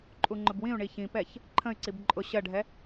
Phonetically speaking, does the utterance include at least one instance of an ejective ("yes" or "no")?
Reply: yes